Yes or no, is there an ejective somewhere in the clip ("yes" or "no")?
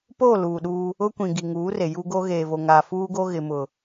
no